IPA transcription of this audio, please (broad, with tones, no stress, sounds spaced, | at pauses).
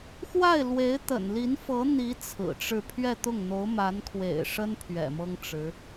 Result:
x w a˥˩ ɪ̯ l w e˧˥ ɪ̯ t̪ ə̰˨˩ n l i˧˥ n f ɤ˧˥ n̪ i˧˥ t͡sʰ ɹ̩˨˩ ʈ͡ʂ ɻ̩˥˧ pʰ ɥ ɛ˥˧ t̪ ʊ˥˩ ŋ n̪ o˧˥ ʊ̯ m a˧˥ n kʰ w ḛ˨˩ ɪ̯ ʂ ə˥ n pʰ ɥ ɛ̰˨˩ m ɤ˥ ŋ ʈ͡ʂ ɻ̩˧˥